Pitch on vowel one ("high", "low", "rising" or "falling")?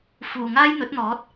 low